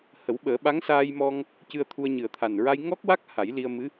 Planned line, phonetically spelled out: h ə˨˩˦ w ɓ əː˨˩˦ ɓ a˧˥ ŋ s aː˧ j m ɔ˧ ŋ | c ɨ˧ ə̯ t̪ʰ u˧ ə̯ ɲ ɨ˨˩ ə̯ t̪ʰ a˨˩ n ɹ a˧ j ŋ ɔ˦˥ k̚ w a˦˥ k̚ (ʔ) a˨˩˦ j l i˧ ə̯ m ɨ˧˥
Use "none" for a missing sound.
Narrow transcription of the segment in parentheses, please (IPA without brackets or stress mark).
h